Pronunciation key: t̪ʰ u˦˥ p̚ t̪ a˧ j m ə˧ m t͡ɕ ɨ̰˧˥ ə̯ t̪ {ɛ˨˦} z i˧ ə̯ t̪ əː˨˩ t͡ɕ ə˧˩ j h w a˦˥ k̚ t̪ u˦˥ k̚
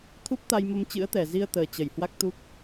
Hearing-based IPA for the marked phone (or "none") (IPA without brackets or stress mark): ɛ˨˩